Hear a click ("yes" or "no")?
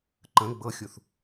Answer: yes